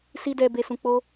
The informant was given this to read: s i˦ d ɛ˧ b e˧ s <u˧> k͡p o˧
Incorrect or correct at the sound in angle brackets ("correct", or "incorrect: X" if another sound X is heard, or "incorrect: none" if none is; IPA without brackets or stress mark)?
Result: incorrect: ũ˧